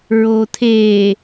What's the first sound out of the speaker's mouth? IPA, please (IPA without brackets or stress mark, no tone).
ɹ